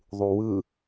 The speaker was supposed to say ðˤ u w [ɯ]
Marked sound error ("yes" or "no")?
no